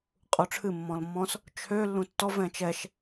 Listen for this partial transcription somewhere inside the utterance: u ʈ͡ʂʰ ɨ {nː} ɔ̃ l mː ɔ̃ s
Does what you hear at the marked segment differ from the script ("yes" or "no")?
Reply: yes